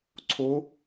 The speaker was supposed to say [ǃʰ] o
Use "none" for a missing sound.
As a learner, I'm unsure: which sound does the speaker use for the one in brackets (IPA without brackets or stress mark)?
ǀʰ